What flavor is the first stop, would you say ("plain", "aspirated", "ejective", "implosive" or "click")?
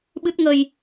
implosive